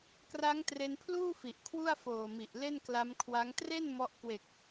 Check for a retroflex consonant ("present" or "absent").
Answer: absent